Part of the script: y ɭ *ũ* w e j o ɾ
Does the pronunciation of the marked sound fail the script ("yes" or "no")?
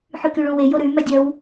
no